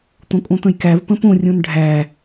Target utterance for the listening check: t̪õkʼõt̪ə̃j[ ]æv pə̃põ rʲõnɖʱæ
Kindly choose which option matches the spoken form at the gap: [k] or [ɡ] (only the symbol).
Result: k